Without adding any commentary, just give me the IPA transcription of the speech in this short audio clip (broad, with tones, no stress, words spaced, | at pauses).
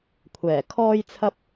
kʷʰɛː˨˩kʰɔː˥jt͡sʰɐ˥p̚